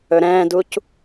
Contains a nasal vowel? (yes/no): yes